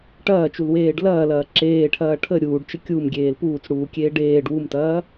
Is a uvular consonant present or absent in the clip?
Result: absent